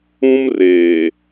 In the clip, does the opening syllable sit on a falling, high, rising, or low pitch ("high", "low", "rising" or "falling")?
high